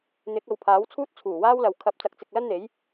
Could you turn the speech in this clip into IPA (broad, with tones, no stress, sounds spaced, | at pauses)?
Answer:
n̪ ɪ˨˥ k̚ ɐ˨ w pʰ aː˨˥ w t͡sʰ uː˥ t̚ t͡sʰ uː˨˩ w aː˥ w l ɐ˨ w kʰ ɐ˧ p̚ t͡s ɐ˧ k̚ t͡s ɪ˨ k̚ l ɐ˥ n n̪ e˨˥ j